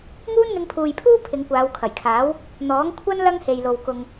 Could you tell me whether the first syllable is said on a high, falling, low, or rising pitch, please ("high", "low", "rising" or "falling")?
high